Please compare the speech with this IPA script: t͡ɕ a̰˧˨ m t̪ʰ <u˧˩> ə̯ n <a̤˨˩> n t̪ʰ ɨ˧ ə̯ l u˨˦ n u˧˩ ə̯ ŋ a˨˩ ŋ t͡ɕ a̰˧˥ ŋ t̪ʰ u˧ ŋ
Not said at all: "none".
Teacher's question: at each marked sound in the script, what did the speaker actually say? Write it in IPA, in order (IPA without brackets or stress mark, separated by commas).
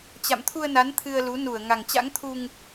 u˧, a˨˦